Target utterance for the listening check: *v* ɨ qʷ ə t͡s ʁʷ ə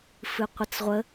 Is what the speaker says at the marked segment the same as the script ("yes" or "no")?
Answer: no